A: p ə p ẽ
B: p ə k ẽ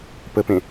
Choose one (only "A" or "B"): A